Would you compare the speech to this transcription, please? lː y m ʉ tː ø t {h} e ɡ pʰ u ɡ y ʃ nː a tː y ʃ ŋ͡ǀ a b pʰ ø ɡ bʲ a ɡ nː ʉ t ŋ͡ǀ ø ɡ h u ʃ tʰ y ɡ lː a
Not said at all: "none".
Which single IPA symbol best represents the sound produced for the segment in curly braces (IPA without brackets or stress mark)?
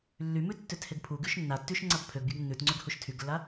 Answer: h